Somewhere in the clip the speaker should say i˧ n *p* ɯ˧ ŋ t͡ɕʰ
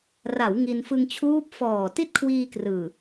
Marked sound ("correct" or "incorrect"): incorrect